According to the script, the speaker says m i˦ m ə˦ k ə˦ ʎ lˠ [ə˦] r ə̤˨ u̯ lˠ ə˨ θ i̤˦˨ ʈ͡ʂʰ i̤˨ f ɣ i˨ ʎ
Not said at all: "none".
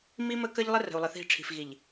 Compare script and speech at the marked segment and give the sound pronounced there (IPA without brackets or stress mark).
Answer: ə˦